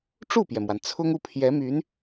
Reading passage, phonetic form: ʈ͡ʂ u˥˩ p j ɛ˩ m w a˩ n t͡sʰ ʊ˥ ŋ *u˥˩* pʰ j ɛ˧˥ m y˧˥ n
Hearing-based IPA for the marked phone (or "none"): u˥˩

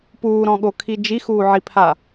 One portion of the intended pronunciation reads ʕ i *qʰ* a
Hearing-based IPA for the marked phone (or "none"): pʰ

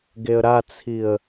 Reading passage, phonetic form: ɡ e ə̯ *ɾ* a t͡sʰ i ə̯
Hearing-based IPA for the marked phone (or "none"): ɾ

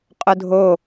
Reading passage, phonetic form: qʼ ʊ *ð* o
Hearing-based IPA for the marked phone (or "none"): dʱ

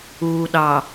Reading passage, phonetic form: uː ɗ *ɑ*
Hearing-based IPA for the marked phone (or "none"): ɑ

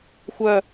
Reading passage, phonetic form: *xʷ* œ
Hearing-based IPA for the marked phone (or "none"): xʷ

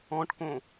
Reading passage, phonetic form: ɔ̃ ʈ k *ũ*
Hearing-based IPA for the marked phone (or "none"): õ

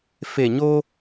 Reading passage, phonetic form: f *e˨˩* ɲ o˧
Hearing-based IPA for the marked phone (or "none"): e˨˩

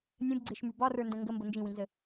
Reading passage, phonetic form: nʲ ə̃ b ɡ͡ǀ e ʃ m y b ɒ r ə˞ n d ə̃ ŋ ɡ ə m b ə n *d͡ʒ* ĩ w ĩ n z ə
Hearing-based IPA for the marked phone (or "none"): d͡ʒ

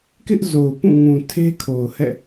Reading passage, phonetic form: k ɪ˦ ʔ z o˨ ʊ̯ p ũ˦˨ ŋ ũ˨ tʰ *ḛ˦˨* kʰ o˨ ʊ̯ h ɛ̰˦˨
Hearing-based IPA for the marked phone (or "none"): e˦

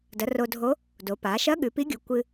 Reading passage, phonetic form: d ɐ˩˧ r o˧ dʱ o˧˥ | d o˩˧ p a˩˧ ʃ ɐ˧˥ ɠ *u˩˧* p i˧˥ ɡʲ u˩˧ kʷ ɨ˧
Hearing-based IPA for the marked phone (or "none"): ʉ˩˧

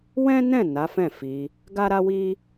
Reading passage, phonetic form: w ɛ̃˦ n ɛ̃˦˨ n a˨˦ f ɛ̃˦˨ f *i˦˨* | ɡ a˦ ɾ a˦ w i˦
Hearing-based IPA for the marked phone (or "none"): i˧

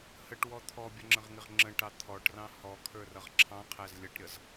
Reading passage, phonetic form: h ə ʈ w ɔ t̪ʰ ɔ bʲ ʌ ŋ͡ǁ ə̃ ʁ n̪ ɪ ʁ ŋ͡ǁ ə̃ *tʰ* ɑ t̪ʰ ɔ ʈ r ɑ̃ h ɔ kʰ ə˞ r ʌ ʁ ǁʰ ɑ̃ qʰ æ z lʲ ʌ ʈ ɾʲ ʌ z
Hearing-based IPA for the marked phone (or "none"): ʈ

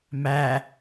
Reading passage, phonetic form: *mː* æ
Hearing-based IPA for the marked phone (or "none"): m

